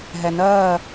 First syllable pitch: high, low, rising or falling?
low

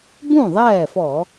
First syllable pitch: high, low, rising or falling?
falling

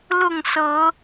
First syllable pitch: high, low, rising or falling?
falling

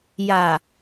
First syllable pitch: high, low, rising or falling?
low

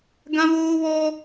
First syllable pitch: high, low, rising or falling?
high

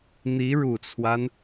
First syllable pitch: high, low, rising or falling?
rising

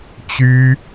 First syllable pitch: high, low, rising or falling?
high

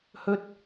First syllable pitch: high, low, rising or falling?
high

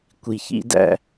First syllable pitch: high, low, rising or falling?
low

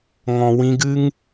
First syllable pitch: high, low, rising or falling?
low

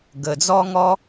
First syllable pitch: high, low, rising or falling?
low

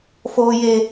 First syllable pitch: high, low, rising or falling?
high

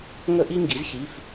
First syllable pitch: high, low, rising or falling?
high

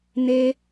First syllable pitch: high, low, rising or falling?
high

